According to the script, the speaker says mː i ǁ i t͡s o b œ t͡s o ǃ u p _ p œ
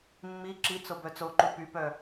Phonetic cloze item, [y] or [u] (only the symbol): y